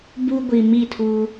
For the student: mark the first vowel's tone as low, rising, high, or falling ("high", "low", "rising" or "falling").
high